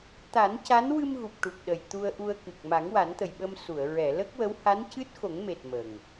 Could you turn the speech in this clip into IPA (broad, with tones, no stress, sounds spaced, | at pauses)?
t̪ a˨˩˦ n c a˧˥ n w ɨ˧ m ɣ u˨˩ p̚ ʈ u˨˩ k̚ ɗ ə˨˩ j t̪ u˧ ə̯ ʔ u˧ ə̯ k ɨ˨˩ k̚ m a˨˩˦ ŋ w a˨˩˦ n t̪ ə˨˩ j ɓ ə˧ m s u˨˩˨ ə̯ ɹ ɛ˨˩˨ l ə˦˥ k̚ w ə˧˥ w h a˧˥ n c ɨ˦˥ t̚ x o˨˩˦ ŋ m e˨˩ t̚ m ə˨˩ ŋ